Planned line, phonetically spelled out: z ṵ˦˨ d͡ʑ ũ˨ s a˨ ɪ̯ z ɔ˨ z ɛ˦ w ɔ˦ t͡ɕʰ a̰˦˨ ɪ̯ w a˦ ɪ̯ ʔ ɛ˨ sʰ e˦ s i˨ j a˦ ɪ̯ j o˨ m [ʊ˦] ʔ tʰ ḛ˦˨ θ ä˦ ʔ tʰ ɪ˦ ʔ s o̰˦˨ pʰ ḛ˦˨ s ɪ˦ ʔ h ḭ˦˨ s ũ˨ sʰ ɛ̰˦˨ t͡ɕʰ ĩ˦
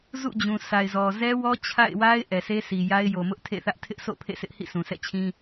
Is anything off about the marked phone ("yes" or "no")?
no